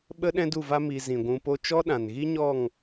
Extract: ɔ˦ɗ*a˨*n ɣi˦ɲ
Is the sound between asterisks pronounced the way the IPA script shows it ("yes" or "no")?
no